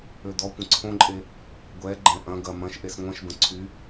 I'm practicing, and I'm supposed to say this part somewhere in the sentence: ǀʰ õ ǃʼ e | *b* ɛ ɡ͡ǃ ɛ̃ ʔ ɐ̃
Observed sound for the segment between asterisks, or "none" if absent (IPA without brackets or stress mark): ɡʷ